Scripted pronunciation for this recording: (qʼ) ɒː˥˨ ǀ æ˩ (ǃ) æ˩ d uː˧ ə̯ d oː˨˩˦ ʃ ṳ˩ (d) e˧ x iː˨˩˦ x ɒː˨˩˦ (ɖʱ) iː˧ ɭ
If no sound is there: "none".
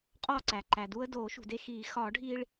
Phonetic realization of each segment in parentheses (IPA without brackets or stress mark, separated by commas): qʼ, ǃ, d, ɖʱ